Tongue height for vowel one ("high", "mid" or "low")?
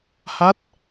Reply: low